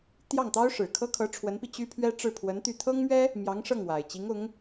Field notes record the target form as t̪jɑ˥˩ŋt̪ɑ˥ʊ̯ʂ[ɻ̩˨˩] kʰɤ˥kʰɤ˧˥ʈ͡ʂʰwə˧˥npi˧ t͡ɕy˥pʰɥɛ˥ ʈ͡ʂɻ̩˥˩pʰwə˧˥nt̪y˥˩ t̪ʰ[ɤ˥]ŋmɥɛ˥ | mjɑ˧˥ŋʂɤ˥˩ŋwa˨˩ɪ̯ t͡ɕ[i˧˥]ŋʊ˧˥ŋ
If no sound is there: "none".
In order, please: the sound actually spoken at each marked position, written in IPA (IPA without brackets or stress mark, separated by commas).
ɻ̩˨˩, ɤ˥, i˧˥